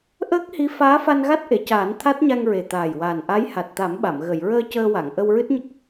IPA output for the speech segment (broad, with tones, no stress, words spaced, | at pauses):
ʔəː˦˥k̚hi˧˥ faː˧˥fa˧n ɣa˦˥t̚ʔe˨˩˨caː˨˩˦n t̪ʰa˦˥t̚ɲa˧ŋɹe˨˩t̪aː˨˩j waː˨˩nʔa˧˥j ha˨˩t̚t̪a˨˩˦mɓa˨˩˨m ɣə˨˩˨jɹəː˧ cəː˧wa˨˩˨ŋ ʔə˧wɹɨ˦˥t̚ɲə˦˥k̚